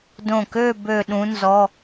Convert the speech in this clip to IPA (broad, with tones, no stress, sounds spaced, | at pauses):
d õ˧˩ k ø˥˧ b ø˥˧ ɗ ũ˧˥ n z ɔ˧˥˧